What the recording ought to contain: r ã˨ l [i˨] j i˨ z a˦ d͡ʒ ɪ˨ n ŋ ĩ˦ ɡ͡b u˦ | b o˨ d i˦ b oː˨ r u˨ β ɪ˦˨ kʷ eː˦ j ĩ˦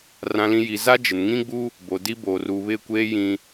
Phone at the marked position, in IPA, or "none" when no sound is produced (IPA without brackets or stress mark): ĩ˨